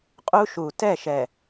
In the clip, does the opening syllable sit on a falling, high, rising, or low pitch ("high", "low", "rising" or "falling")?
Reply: high